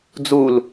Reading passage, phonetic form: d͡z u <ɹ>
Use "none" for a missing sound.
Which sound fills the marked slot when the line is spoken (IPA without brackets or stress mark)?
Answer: l